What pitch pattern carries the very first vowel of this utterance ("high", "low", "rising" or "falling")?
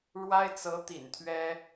high